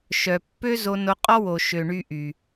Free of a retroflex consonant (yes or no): no